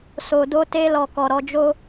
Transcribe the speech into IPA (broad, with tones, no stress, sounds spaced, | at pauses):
s o˨ d o˧ t e˧ l ɔ˨ k ɔ˨ ɾ ɔ˧ d͡ʒ o˦